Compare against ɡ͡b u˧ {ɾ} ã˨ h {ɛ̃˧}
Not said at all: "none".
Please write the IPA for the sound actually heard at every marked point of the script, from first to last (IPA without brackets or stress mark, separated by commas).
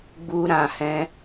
ɾ, ɛ̃˧